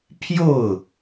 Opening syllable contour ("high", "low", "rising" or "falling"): falling